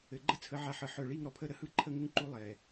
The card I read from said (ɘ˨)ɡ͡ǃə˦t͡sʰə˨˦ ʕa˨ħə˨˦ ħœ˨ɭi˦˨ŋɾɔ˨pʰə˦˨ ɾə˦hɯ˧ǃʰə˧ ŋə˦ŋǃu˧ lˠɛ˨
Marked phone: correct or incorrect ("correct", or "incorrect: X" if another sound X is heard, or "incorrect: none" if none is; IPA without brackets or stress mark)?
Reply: correct